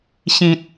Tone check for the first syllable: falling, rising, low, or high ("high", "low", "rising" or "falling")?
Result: low